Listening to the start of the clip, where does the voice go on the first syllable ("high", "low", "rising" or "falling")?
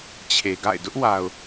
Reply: low